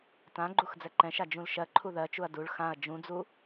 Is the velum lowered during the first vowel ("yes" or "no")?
yes